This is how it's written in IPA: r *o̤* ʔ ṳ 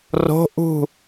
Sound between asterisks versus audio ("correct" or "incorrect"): correct